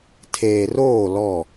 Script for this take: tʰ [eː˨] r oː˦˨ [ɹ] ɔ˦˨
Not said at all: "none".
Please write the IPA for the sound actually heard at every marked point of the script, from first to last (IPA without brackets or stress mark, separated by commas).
eː˨, l